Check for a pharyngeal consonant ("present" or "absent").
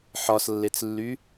present